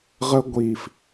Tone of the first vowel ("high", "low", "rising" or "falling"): high